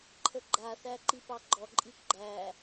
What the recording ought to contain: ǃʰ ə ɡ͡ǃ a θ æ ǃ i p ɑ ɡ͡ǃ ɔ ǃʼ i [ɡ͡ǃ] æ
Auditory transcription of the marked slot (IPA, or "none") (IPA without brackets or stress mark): ɡ͡ǃ